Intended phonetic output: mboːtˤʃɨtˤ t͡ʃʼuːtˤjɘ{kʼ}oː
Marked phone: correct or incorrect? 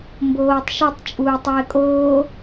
correct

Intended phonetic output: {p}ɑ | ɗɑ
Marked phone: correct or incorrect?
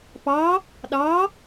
correct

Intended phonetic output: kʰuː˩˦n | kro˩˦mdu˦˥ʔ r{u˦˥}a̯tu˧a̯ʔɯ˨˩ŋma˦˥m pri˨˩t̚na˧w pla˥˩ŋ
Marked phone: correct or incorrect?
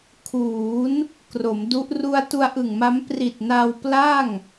incorrect: u˧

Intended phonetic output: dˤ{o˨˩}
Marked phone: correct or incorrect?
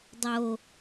correct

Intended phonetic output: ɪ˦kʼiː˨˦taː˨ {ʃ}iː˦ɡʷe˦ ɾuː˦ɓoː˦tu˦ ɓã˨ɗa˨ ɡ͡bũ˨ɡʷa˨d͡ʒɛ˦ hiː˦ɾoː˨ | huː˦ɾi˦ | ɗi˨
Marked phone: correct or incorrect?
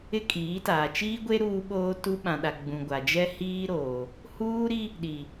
incorrect: t͡ʃ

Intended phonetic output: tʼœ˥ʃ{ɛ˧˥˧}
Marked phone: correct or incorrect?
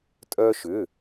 incorrect: ʏ˧˥˧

